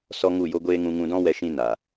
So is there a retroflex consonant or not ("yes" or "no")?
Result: no